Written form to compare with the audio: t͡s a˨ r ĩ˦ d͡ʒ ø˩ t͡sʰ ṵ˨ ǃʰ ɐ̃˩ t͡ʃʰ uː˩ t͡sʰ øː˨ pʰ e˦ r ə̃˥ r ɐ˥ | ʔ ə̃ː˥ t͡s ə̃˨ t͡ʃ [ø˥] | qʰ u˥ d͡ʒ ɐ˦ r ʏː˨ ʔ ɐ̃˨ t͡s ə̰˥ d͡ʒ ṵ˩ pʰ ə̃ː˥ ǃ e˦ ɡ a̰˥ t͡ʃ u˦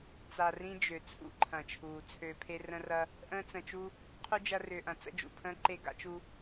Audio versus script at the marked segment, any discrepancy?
yes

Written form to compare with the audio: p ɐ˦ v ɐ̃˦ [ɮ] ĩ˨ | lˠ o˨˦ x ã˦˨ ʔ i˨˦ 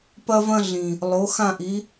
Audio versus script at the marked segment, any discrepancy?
no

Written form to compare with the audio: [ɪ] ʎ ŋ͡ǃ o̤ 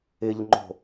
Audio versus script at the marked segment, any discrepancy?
no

